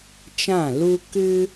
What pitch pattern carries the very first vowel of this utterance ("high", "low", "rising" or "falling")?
falling